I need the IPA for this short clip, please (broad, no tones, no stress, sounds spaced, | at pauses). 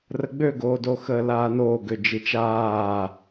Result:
r ə ɡ͡b ø ɡ oː d o x əː l aː n oː ɡ ø d͡ʒ i t͡ʃ aː